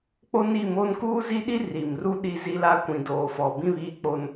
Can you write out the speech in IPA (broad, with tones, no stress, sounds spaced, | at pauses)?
k͡p o˦ n i˦˨ m o˦ n k uː˦ z i˦ ɗ i˦ r i˨ m r u˦ ɗ i˦ z i˦ l a˦ kʷ ĩ˨ d oː˨ f ɔ˨ b ĩ˦ β iː˦ k͡p o˦ n